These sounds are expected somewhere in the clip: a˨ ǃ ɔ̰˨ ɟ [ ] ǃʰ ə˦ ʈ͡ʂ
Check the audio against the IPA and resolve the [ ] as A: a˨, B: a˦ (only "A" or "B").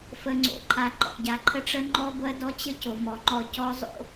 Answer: A